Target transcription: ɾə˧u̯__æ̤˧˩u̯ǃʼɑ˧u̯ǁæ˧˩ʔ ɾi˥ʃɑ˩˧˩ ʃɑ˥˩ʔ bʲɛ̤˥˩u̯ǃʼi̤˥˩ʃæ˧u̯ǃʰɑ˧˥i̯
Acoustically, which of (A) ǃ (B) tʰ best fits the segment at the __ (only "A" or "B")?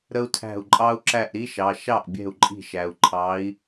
B